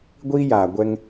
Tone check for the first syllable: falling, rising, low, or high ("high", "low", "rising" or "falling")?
high